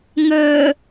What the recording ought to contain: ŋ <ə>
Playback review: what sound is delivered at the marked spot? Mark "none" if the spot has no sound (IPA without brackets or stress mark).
əː